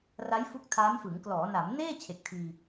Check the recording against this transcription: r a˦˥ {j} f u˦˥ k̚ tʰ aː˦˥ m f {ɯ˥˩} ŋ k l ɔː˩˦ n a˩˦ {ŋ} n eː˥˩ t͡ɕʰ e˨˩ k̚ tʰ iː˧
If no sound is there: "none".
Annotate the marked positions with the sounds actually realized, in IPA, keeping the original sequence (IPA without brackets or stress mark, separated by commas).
j, ɯ˩˦, m